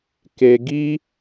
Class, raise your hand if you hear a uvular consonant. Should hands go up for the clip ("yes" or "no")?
no